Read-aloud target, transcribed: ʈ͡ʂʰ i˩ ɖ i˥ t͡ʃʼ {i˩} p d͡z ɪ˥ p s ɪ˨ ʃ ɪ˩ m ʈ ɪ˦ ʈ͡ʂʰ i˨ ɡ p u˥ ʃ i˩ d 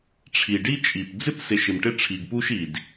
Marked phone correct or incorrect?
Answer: correct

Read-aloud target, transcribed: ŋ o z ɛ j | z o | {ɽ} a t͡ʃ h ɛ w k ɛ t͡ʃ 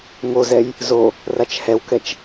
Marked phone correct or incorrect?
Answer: incorrect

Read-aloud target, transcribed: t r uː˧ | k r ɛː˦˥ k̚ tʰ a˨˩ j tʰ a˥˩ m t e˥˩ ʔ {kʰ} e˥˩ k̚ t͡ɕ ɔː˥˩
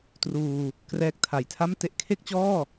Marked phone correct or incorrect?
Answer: correct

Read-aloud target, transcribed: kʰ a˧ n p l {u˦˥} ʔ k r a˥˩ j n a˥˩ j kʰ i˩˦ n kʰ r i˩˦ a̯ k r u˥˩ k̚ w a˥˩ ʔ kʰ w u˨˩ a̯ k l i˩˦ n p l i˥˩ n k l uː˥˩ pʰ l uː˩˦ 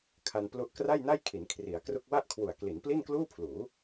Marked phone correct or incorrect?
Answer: correct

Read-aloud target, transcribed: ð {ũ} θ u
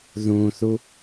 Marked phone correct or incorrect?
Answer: correct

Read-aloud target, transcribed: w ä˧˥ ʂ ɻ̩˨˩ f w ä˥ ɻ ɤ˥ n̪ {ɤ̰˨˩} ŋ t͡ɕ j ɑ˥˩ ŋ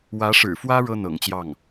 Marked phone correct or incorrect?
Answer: correct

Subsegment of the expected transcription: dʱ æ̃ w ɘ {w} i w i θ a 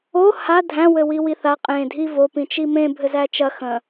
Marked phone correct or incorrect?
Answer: correct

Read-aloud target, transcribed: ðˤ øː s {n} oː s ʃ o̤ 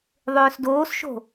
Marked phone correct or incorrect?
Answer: incorrect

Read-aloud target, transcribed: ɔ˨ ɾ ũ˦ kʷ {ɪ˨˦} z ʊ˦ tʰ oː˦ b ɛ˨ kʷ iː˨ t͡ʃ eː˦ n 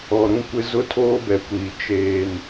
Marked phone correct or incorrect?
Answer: incorrect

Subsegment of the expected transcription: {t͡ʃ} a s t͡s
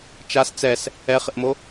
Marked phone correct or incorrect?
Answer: correct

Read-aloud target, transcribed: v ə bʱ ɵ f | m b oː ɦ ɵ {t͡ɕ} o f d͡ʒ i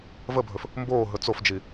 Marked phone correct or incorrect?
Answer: incorrect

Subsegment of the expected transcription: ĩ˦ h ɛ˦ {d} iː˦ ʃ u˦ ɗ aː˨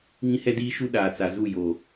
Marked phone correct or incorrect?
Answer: correct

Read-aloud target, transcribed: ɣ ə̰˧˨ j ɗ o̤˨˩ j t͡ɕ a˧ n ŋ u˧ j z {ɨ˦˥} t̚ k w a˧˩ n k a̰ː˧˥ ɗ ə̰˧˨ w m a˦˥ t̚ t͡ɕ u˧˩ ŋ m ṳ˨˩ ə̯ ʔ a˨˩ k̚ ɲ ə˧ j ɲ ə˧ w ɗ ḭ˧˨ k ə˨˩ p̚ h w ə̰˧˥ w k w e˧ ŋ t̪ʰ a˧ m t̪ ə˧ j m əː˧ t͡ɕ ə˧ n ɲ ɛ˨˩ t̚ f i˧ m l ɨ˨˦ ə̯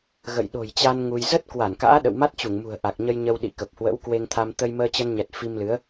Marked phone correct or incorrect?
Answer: incorrect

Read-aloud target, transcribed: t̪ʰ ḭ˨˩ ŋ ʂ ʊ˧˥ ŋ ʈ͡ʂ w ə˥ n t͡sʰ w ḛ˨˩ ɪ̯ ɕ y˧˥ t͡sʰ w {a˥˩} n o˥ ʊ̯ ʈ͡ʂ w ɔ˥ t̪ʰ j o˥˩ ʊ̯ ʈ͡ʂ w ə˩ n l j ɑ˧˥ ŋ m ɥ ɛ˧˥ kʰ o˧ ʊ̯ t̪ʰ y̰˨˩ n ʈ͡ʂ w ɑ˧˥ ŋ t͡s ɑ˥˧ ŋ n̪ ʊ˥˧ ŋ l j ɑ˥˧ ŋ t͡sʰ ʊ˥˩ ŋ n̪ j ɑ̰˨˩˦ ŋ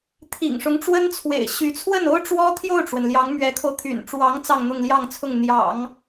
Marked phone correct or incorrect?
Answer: incorrect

